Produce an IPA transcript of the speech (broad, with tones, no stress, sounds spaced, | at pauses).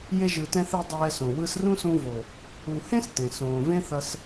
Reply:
j e˧ ʒ ɯ˨ t ɛ̃˧ θ e˧ dˤ ɛː˧ s õ˨ w ɯ˧ s r ũ˦ s ũ˧ v o˨ | u˨ h ẽ˦ s t ẽ˨ s õː˨ v ẽ˦ θ ʌ˧ s